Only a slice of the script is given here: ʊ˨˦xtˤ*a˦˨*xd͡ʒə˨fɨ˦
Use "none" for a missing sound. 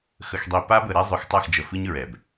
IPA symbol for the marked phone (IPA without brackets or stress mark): a˦˨